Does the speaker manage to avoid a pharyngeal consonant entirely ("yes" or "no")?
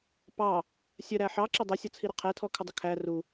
no